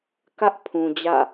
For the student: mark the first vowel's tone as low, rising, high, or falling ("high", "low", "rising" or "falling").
high